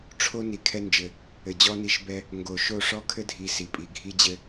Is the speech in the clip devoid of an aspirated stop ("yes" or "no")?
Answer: no